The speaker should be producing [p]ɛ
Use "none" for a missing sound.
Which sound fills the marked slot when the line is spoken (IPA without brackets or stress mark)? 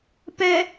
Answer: p